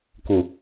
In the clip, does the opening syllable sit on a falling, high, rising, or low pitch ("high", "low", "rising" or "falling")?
low